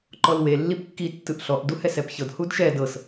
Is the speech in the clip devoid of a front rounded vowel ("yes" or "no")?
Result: yes